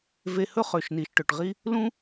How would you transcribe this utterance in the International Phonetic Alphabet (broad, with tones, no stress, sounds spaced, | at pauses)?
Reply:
v e˧ h ɵ˥ χ ø˩ ʃ n i˩ ʃ ʈ ɵ˩ ʈ ʁ i˥ | l ũ˥